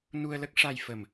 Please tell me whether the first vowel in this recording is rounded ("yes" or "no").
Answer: yes